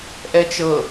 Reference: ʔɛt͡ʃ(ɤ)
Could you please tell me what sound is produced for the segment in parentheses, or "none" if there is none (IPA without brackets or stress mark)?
ɤ